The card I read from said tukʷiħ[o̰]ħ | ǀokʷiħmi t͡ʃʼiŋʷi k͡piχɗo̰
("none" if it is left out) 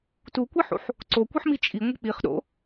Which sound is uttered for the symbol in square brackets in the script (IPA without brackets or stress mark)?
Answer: ṵ